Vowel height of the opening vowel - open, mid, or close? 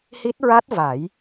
close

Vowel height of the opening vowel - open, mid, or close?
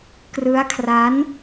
close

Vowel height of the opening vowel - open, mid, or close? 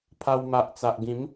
open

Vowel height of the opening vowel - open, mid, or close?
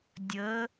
mid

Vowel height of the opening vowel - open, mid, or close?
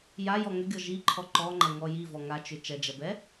open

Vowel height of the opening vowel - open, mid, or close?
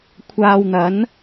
open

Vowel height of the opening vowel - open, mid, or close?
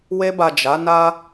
mid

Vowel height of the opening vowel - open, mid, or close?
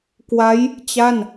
open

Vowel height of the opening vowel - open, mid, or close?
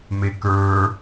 mid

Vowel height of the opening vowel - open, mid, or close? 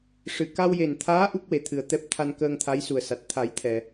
close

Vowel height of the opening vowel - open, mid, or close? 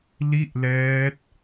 close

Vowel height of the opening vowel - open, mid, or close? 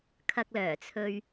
open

